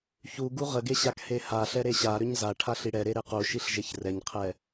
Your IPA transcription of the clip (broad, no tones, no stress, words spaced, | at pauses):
çu ɡuʁəɡe ɕakhehaɬɛ ɾeɕaɾʏɲ za ʈʰaɬiɽɛɾe ɾequʃiɬ ʒeçrɛɲqʰɛ